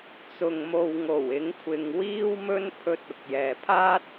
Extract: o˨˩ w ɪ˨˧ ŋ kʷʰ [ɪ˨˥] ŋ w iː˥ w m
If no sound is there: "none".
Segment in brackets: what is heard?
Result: ɪ˨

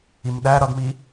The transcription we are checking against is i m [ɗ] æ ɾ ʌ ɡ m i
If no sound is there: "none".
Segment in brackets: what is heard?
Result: ɗ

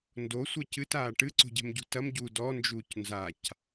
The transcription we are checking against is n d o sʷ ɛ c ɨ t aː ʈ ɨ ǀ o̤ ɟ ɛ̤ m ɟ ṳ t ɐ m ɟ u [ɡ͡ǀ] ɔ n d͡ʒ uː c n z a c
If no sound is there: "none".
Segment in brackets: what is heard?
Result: d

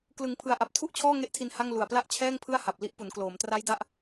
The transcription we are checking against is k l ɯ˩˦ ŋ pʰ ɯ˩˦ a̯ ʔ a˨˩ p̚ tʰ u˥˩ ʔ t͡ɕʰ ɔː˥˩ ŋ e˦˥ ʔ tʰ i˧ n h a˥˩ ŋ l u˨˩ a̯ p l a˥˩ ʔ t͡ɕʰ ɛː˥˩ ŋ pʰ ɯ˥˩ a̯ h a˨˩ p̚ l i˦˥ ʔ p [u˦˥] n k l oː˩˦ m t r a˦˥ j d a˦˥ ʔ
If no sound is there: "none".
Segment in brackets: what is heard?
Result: u˩˦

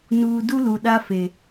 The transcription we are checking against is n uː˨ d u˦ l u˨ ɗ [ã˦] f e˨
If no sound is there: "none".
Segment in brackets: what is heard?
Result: a˦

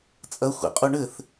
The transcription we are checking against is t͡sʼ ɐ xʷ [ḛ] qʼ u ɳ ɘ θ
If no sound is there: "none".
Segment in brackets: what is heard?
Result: ḛ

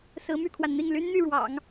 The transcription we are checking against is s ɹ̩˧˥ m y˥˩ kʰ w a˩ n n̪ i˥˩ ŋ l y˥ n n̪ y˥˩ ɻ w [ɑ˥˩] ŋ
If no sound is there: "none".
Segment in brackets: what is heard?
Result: ɑ̰˨˩˦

